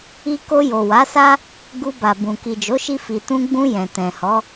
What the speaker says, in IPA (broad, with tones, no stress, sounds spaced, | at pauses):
i˧ k o˧ j o˨ w a˨˦ s a˦ | ɡ u˧ b a˨ b ũ˨ k i˨ d͡ʒ o˨˦ ʃ i˧ f i˨ t ũ˧ ɡ͡b ũ˧ j ɛ̃˨ t ɛ̃˨ h ɔ˨˦